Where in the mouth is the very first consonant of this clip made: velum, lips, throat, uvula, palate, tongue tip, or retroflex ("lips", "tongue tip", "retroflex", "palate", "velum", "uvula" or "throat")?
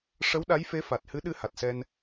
retroflex